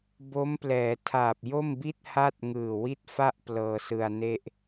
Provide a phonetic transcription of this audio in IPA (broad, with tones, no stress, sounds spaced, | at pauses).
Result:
b o˦˥ m p l ɛː˩˦ tʰ aː˨˩ p̚ j o˥˩ m b i˥˩ t̚ h a˥˩ t̚ ŋ ɯː˨˩ w i˥˩ t̚ f a˥˩ ʔ p l ɤː˧ s ɯ˧ a̯ n e˥˩ ʔ